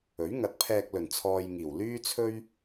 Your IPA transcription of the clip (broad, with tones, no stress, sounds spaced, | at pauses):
ɵ˨˥ ɥ ŋ ɐ˨˥ t̚ pʰ ɛː˧ k̚ l ɵ˨˩ n t͡sʰ ɔː˧ j ŋ iː˨˩ w l yː˥ t͡sʰ ɵ˥ ɥ